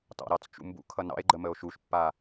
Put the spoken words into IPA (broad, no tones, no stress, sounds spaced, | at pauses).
t ɑ̰ ɾ ɑ t͡s t͡ʃ ṵ m b ṵ kʰ ʌ n ɑ̰ e̯ ɡ͡ǃ ə m ə o̯ ʃ u ʃ pː a